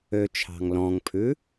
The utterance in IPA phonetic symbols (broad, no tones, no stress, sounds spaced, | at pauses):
ø t͡ʃʰ ɑ̤ ŋ l ɔ̃ ŋ pʰ ʉ